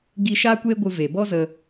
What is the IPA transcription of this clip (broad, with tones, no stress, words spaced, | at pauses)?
ɡi˧ ʃaː˦kʷeː˦ɡʷɨ˧ ve˨ bɔ˦ zə˧